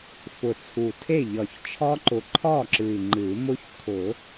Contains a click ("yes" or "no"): yes